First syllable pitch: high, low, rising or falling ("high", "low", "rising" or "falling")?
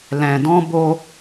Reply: low